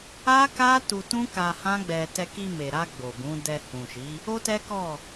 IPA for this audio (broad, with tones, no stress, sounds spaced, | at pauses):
a˦ k a˦ t u˧ t ũ˦ k a˧ h ã˦ ɡ͡b ɛ˧ t ɛ˧ k i˧ m e˨ ɾ a˧ ɡ͡b o˨ b ũ˨˦ d ɛ˧ h ũ˨ ʃ i˨˦ | o˦ t ɛ˦ k ɔ˦˨